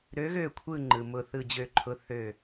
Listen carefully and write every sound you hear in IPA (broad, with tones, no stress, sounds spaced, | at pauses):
ɾ ø˨˦ ɣ ø˧˩ kʷʰ ɯ˧˩ ŋ͡ǃ ɯ˩ m ʊ˧˩ θ ɯ˧˩ d͡ʑ ø˧˩ ǃʰ ʊ˨˦ θ ø˧˩